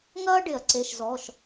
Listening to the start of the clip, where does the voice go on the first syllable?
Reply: high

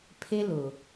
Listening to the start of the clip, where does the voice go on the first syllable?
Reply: high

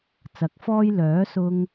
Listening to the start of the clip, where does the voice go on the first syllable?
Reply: rising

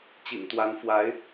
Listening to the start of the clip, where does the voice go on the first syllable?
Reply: low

